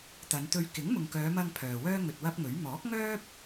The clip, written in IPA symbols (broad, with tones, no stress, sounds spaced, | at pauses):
t̪ ɐ˨˧ n t̪ ɵ˧ ɥ k ɪ˨˥ ŋ m ʊ˨ ŋ k œː˨˧ m ɐ˧ ŋ pʰ œː˨ w œː˥ ŋ ɵ˧ t̚ w ɐ˥ p̚ ŋ ɵ˨˥ ɥ m ɔː˨˥ k̚ ŋ œː˥ p̚